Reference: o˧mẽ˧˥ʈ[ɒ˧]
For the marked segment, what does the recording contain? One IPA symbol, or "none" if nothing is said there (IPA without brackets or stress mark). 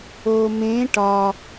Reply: ɒ˧